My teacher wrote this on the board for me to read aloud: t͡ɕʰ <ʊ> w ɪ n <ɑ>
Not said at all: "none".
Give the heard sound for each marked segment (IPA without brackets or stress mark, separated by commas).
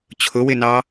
ʊ, ɑ